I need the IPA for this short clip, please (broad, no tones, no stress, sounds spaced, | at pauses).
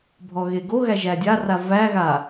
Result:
bʱ ɔ ɣ e ɡ o ɣ æ ʒ æ dʲ a r a v æ ɣ a